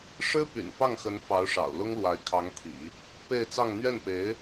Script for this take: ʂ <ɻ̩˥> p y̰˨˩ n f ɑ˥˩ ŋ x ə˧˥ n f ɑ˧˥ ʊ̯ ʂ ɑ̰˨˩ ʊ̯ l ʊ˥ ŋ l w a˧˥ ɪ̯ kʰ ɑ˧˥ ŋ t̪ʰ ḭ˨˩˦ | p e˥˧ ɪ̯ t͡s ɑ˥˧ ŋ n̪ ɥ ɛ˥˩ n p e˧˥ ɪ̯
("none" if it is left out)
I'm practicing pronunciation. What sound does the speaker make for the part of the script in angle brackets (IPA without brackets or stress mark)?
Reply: ɻ̩˥